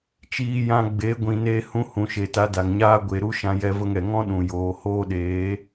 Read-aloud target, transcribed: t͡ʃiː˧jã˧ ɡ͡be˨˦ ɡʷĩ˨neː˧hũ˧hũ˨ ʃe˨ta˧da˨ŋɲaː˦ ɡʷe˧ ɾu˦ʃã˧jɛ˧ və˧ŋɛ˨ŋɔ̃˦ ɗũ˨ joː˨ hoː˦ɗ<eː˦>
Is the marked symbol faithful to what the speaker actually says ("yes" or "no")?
no